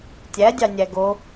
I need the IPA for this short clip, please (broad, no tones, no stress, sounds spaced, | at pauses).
tʲ æ dʲ ɑ nʲ æ ɡ o